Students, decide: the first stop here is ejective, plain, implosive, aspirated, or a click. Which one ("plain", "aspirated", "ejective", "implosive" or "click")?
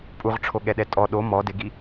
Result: ejective